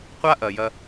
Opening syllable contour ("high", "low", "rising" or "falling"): high